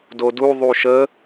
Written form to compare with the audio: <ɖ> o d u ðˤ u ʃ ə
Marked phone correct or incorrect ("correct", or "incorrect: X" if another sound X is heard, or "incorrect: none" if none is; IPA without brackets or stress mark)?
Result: incorrect: d